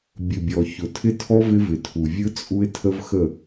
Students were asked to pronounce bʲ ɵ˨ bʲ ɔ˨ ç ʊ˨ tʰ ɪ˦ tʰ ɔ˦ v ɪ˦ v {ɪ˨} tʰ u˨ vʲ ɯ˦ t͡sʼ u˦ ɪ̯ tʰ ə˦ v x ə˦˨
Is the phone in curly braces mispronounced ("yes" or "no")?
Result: no